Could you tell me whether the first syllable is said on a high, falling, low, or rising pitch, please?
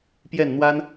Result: falling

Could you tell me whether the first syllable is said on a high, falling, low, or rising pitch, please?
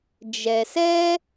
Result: low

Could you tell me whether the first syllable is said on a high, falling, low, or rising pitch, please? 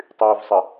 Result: low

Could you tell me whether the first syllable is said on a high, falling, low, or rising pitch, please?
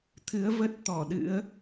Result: rising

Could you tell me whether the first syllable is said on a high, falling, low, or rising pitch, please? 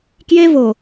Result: high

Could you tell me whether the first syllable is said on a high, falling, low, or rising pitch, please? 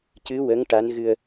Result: rising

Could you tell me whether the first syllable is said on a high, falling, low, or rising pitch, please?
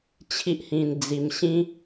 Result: high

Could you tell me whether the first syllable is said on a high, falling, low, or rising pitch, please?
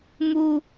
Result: high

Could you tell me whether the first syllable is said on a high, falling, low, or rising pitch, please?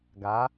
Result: rising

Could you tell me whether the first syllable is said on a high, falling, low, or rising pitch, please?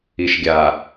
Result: low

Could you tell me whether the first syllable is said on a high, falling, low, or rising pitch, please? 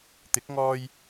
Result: rising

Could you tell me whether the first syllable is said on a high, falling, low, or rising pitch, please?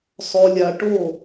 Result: low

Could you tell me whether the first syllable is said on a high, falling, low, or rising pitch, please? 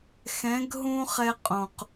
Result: rising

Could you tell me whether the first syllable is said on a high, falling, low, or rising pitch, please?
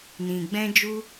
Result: low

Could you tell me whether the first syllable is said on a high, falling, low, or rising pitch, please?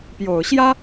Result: low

